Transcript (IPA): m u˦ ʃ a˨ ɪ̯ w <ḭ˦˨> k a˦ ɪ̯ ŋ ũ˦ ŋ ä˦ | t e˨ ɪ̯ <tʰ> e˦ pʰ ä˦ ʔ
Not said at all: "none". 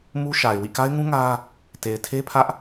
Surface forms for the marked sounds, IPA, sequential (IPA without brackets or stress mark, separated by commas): ḭ˦˨, tʰ